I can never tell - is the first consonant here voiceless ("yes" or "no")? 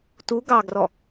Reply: yes